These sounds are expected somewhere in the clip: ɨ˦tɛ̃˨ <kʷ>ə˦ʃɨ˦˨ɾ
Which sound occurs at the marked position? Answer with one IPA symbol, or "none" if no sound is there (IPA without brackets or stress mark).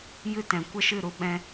kʷ